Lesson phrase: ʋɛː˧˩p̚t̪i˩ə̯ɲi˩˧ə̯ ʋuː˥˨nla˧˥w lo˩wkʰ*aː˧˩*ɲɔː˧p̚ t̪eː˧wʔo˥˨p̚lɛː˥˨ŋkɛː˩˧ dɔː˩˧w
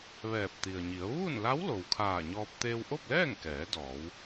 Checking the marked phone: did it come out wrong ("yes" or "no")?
no